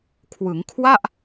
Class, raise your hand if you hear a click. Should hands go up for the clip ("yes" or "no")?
no